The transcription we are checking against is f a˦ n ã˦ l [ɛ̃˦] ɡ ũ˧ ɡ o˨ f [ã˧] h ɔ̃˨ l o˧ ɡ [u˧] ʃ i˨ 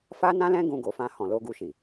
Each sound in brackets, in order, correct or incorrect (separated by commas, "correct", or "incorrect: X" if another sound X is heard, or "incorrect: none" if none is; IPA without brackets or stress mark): correct, correct, correct